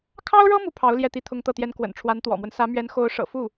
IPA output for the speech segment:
kʰ ɑ˥ ʊ̯ ɻ ɤ˥ m u˥˩ pʰ ɑ˧˥ ʊ̯ l j ɛ˥˩ t̪ i˥ t̪ʰ ʊ˥ ŋ t̪ ɤ˥˩ t̪ j ɛ˥ n k w ə̰˨˩ n ʈ͡ʂʰ w a˧˥ n t̪ w ɔ̰˨˩ m w ə˦ n s ä˧˥ m ɥ ɛ˧˥ n x o˧˥ ʊ̯ ʂ ɤ̰˨˩ f u˥˩

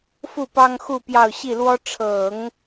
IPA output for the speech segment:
f u˥˩ p ɑ˥ ŋ x u˥˧ p j ɑ˥˧ ʊ̯ ɕ i˥˩ l w ɔ˥ ʈ͡ʂʰ ɤ˨˩˦ ŋ

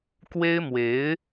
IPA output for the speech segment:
k w e˥ ɪ̯ m w e˧˥ ɪ̯

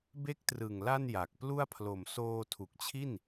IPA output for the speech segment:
b e˦˥ k̚ t r ɯ˨˩ ŋ l a˥˩ n j a˨˩ k̚ p l u˥˩ a̯ pʰ l o˨˩ m s oː˧ tʰ u˨˩ k̚ t͡ɕʰ i˥˩ n

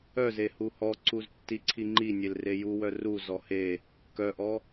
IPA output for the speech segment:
œ z e h u h ɔ ǀ u z tː i ǀʰ i ŋ͡ǃ i nʲ e l r e j u w œ r u z ɔ h e | k œ ʔ ɔ

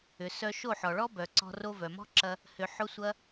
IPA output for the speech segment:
ʏ˨ s œ˧ ʃ o˦˨ ħ ɔ˨ ɭ ɔ˦ b œ˨ ǀ ɔ̤˧ r o˧ v œ˨ m ɔ̤˦ ǁ ɐ˧ | h ʏ˧ ħ ʊ˦ sʷ ɐ˦

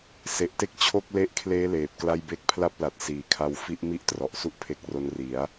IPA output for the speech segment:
s e˨˩ ʔ t e˥˩ k̚ t͡ɕʰ o˥˩ k̚ l e˦˥ ʔ kʰ l eː˦˥ l eː˨˩ p̚ k l a˥˩ j b e˦˥ k̚ pʰ l a˥˩ p̚ l a˨˩ t̚ s iː˩˦ kʰ a˧ w f i˦˥ ʔ m i˥˩ ʔ t r ɔ˨˩ ʔ s u˦˥ ʔ pʰ e˦˥ k̚ r o˦˥ n r i˩˦ a̯

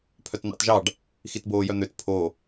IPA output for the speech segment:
pʰ œ t n̪ ɑ̰ t ʒ ɑ ɖ | x i t b oː j œ n̪ ø t pʰ o

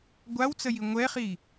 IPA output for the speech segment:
ɡʷ a w t͡s ə j i ŋʷ ɛ χ i

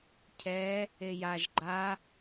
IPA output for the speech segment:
cʰ ɛ | e j a ʒ ɡ͡ǃ a

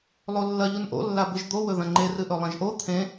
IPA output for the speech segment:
lˠ o lː ɐ ʎ u n ʔ o̰ lː a b ɨ ʒ d̪ o w ɵ ð ɐ̃ ŋ͡ǃ e r ɨ ʔ ɵ lˠ ɐ̃ ʒ ʔ o t̪ʰ ẽ

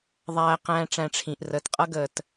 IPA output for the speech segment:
ðˤ æː˦ q æ̃ː˦ ʈ͡ʂ æ̃˧ ʈ͡ʂʰ ĩ˨ ʔ r əː˨˦ t qʼ ʌ˦ ɡ əː˨ t

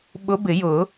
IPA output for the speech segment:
ɓ ʊ˧˥ b ɪ˨˩˦ j ʊ˨˩˦

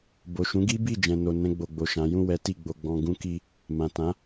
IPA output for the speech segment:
b o˨ ʃ ũ˨˦ ɡ i˦ b i˦˨ d͡ʒ ɛ̃˨ n o˨ n ɛ̃˧ ɡ͡b o˨ ɡ͡b o˨ ʃ ã˨˦ j ũ˦˨ w ɛ˨˦ t i˦˨ ɡ͡b o˧ ɡ͡b ɔ̃˧ ɡ ũ˦ k i˧ | m ã˨ t ã˨˦

